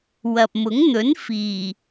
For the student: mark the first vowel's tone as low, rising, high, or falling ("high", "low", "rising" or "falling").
low